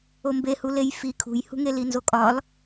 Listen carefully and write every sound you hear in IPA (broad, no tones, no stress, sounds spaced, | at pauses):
o m b e h u l e j f i kʰ ṳ j h ṳ ŋ e l i n z o kʼ ɒ l